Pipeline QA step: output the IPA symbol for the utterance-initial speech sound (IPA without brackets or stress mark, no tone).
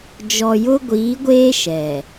d͡ʒ